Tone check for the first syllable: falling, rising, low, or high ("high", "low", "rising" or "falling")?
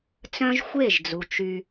high